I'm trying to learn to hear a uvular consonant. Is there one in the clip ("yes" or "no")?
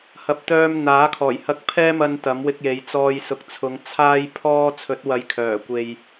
no